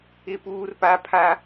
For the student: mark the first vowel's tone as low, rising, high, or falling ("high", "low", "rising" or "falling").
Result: falling